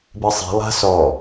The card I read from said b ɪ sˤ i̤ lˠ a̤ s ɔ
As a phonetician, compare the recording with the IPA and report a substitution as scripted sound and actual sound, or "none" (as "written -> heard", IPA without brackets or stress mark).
none